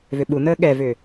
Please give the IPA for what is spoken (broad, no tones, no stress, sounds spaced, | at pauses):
v ʏ ɓ u n̪ əː ɠ ɛ v ʏ